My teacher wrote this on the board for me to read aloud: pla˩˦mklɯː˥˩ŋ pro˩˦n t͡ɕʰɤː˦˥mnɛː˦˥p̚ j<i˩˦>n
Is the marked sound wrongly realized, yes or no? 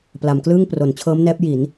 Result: no